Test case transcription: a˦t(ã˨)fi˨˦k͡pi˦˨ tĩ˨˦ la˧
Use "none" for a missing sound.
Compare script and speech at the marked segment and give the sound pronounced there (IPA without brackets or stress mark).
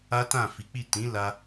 ã˦˨